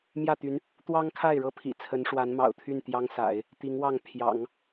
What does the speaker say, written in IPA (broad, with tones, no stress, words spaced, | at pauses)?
mjä˥˩t̪y˧˥n | t̪wɑ˥ŋkʰa˥˩ɪ̯ɻɤ˥ pʰḭ˨˩ t͡sʰə˧˥nʂwa˧˥nmɑ̰˨˩ʊ̯t̪ʰy˥˩n t̪jɑ˥ŋsa̰˨˩˦ɪ̯ | t̪i˧˥ŋwɑ˥˩ŋ pʰjɑ̰˨˩˦ŋ